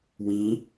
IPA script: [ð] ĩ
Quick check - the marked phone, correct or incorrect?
incorrect